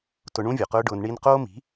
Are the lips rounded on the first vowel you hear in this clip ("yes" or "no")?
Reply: yes